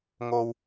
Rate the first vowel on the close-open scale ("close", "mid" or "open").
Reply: mid